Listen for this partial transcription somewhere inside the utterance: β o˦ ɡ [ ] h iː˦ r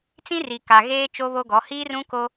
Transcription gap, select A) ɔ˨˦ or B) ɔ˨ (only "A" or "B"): A